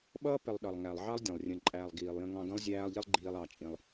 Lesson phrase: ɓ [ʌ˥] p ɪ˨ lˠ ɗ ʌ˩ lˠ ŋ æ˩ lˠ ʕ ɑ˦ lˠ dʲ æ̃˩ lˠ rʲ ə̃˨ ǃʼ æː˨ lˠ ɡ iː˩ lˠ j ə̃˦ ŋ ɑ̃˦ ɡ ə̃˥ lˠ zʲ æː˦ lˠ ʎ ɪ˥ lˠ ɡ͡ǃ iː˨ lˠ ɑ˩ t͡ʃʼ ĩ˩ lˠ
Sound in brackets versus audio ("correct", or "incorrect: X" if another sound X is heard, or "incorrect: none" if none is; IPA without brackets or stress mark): incorrect: ʌː˥